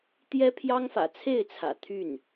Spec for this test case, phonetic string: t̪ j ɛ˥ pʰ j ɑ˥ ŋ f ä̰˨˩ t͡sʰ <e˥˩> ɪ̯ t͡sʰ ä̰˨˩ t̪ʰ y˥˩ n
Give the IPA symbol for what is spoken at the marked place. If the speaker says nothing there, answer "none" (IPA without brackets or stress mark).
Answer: e˥˩